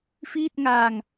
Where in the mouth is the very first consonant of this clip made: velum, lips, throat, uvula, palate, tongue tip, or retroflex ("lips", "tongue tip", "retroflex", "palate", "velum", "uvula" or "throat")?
lips